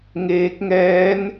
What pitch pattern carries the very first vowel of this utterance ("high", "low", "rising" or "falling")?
rising